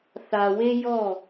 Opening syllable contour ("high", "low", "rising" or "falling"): low